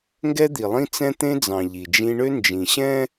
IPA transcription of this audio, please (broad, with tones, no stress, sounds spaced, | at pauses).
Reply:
ŋ ɡ ɛ˦ d̪ i˨ lˠ ĩ˦ t͡s ɛ̃˦ t̪ ẽ˦ d͡z ɑ̃˨ ʎ i˨ d͡ʒ ĩ˦ ɳ ø˦ n d͡ʒ ĩ˨ ɕ ɛ̃˦